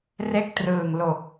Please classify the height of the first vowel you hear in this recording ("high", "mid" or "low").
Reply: mid